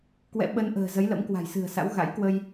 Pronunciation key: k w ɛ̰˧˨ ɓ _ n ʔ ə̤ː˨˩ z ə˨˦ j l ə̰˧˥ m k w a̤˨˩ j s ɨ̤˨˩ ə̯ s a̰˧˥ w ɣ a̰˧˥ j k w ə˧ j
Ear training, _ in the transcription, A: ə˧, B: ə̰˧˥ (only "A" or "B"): A